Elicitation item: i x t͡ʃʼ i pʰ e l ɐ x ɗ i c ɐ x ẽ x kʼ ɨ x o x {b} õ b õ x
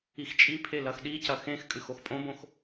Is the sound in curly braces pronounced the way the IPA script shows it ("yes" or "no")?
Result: no